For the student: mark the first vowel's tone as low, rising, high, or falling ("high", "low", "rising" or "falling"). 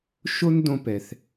high